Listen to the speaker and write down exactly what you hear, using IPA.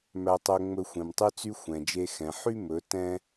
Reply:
m æ˧ tˤ ø˧ ŋ͡m ɵ˧ xʷ ẽ˨ m tˤ y˧ t͡s y˧ xʷ ɛ̃˨ d͡ʒ e˧ x ɛ̃˨ ħ y˦ m ɵ˨˦ t ɛ̃˦

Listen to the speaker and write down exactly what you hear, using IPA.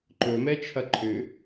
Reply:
ǃ ɵ m ɛ t͡ʃʰ ɐ ǃʰ ʏ

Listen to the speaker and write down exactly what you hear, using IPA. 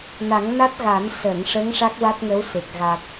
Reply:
n a˨˩˦ ŋ n a˦˥ t̚ ɣ a˨˩˦ n s ə˨˩˨ ŋ ʂ ə˧˥ ŋ ʂ a˦˥ k̚ w a˦˥ t̚ ŋ ə˧˥ w s e˨˩ k̚ ɣ a˨˩ t̚

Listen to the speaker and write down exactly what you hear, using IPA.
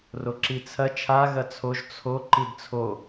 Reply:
r o ǁ i t͡sʰ ɐ t͡ʃʰ a ɣ ɐ t͡sʰ o ʒ t͡sʰ o ǃ i d t͡sʰ o

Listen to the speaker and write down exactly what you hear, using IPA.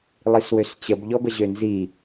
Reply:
lˠ i s w ø s t͡ɕ ə b ʎ ɔ b ə ʑ ø n z i

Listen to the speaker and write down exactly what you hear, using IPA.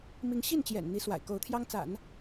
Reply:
m i˧˥ ŋ ɕ i˥˩ n t͡ɕ j ɛ̰˨˩ n n̪ i˧˥ s w a̰˨˩ ɪ̯ k o˧˥ ʊ̯ t̪ʰ j ɑ˥ ŋ t͡s a̰˨˩˦ n

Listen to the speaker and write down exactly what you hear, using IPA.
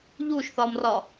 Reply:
ʎ u ʃ θ ɒ m r ɒ

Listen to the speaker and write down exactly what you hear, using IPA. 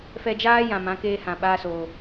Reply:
f ɛ˧ d͡ʒ aː˦ j ã˨ m ã˨˦ k eː˧ h ã˨ ɓ aː˧ s o˨

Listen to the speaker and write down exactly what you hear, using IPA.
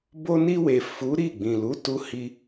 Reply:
b o˧ n i˧ w e˨ f u˨˦ ɾ i˦˨ ɡ͡b ĩ˨ l u˨˦ t u˧ h i˧

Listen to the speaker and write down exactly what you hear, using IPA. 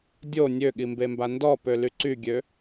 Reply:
dʲ o nʲ ø ɠ i m b e m b a n d ɔ p ø l y ǀ y ɡʲ ø

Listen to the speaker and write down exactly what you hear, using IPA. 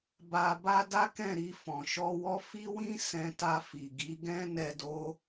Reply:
b a˧ b a˦ d a˦ k ɛ̃˦˨ ɾ i˧ f ɔ̃˨ ʃ ɔ˧ w ɔ˦ f i˦ w ĩ˦ s ɛ̃˧ t a˧ f i˨ ɡ i˨˦ ɡ ɛ̃˦ n ɛ˧ d o˦

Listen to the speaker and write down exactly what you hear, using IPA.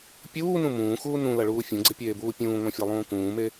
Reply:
pʲ uː n ũ m ũː x uː n ũ l ɐ ɭ uː fʲ ũ ɡ͡ǀ ɪ pʲ eː b uː pʲ ũː ŋʷ ã fʲ a lˠ ũː k ũː m e

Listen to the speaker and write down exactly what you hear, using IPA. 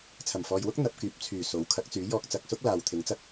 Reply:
t͡sʰ ɐ˨˩ m f ɔː˨ j w ʊ˥ k̚ n̪ ɐ˨ p̚ k yː˨ p̚ t͡sʰ yː˨˩ s o˨˥ w kʰ ɐ˨˥ k̚ t͡s yː˨˥ j ɔː˧ k̚ t͡s ɐ˨ k̚ s ʊ˥ k̚ l aː˨ w t̪ʰ ɪ˨˧ ŋ t͡s ɐ˥ k̚

